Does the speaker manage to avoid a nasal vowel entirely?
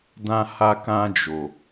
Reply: no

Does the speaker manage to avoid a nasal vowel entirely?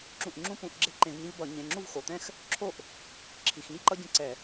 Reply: no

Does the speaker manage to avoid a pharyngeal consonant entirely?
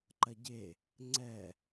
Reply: yes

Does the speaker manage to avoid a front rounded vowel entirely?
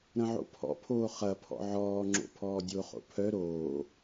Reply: no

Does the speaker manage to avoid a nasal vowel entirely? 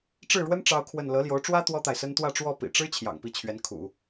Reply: yes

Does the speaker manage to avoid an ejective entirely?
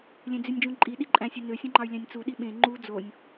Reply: no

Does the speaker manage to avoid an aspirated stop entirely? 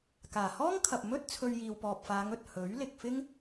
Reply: no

